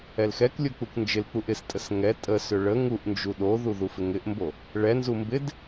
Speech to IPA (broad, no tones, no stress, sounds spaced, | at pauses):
ɛ l x ɛ k lʲ o k͡p u k n d͡ʒ ɪ l k͡p u ʔ ɪ s tʼ ə s ŋ ɛ tʼ ə s ʏ ɭ ə ŋ u ʔ n d͡ʒ u ɗ o ð u ð u f ɪ ŋ ɪ ʔ m b o | ɭ ɛ n z u m b ɪ d